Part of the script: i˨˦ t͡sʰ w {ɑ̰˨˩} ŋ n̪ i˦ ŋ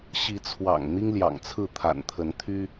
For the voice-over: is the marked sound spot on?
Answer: yes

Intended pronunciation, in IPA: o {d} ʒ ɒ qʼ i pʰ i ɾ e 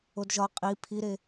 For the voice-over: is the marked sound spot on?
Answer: yes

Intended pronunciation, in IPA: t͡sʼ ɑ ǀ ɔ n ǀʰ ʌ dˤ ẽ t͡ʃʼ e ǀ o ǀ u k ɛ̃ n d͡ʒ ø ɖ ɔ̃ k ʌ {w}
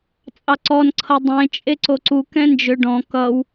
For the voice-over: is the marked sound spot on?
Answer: yes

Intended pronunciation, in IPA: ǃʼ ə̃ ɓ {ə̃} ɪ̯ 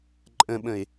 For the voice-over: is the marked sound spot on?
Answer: yes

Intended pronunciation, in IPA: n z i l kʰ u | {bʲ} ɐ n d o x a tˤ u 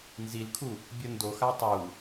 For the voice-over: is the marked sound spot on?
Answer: yes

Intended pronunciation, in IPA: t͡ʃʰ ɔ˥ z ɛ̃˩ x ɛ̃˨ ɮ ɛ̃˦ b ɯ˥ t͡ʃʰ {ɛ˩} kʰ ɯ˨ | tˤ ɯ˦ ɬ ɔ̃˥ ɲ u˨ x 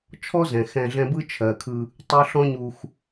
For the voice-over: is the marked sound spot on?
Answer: no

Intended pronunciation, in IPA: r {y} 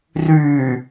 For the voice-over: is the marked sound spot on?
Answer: yes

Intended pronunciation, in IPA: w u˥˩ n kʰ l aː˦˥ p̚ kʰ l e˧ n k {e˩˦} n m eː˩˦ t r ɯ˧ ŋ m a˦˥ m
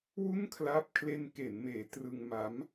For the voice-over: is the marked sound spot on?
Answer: yes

